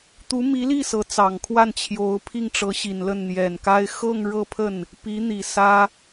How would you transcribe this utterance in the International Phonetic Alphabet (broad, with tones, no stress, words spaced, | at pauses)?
t̪u˧˥mi˧˥li˥˩ sɤ˧˥t͡sɑ˨˩ŋkʰwa˥˩n t͡ɕʰjo˧˥ʊ̯pʰi˥˩ŋ ʈ͡ʂɤ˧˥ɕi˨˩nlə˥˩n n̪jɛ˨˩nka˥ɪ̯ xɤ˥˧ŋɻɤ˥˧pʰə˥˩n | pi˧˥n̪i˨˩sä˥